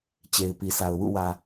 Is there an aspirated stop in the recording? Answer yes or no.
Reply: no